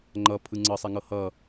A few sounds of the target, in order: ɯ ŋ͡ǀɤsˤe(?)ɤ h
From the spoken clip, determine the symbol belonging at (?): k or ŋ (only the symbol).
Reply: ŋ